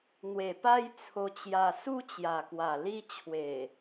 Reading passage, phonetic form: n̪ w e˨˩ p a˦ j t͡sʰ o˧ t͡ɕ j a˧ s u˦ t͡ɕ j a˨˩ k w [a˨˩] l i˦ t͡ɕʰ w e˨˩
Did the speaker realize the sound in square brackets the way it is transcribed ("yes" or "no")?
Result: yes